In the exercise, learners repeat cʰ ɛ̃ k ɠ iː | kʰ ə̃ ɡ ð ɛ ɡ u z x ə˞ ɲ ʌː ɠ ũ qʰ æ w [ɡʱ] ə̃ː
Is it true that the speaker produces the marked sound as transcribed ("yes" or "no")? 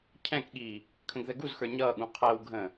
yes